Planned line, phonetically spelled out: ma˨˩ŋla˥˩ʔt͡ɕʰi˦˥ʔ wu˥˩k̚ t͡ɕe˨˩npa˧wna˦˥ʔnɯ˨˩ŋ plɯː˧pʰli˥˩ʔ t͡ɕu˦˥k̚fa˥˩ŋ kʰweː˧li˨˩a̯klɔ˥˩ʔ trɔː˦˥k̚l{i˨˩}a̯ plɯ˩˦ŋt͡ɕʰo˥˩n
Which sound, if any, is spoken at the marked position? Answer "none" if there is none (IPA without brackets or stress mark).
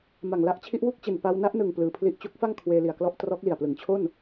i˨˩